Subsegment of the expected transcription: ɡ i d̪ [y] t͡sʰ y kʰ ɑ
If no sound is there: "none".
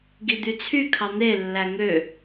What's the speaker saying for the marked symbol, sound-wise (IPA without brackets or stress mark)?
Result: y